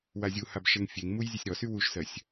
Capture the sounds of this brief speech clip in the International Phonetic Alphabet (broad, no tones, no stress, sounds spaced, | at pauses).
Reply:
w a zʲ u h a b ʃ ɛ ŋ fʲ e ŋ m u j zʲ ɛ sʲ ɾ ɔ s y w u ʃ s ɜ sʲ